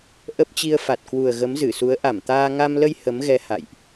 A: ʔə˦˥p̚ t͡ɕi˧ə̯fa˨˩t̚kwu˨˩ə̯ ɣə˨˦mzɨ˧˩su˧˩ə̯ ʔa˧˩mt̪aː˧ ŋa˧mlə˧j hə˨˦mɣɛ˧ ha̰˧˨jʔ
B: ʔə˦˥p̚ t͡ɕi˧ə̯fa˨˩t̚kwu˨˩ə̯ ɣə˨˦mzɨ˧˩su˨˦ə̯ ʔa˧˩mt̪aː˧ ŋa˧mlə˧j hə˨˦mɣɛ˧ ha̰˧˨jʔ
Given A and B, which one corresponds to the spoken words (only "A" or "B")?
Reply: B